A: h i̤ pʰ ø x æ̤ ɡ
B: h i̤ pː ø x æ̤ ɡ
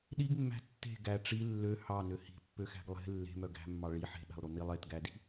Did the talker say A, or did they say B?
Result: B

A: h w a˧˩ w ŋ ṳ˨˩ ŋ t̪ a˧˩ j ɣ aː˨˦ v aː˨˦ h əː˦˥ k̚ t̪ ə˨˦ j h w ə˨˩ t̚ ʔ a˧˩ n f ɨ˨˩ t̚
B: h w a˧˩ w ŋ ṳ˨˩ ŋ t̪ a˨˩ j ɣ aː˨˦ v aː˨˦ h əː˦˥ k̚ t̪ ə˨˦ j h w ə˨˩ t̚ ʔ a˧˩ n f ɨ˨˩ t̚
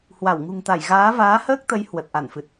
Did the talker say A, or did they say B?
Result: A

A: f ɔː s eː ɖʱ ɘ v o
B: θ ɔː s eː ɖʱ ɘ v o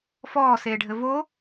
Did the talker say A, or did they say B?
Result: A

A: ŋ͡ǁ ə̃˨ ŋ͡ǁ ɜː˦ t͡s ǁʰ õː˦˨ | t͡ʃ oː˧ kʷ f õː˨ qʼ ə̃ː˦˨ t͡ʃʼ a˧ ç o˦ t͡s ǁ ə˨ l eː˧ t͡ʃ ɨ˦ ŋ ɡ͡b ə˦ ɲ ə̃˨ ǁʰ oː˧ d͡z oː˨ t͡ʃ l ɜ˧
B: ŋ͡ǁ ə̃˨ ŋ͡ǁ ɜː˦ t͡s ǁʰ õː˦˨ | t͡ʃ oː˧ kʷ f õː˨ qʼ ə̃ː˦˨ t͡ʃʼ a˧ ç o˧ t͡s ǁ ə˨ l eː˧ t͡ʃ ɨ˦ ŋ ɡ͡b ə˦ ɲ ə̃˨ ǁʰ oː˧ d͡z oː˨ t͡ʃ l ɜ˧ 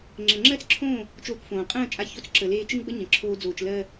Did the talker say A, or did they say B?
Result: B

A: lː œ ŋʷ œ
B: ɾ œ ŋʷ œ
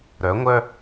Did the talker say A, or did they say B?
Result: B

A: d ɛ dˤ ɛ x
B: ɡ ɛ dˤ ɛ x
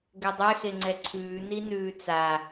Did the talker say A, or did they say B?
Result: B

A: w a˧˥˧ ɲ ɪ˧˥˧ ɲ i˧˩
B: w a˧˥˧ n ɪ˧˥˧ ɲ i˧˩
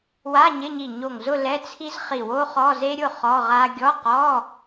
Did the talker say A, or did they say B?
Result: A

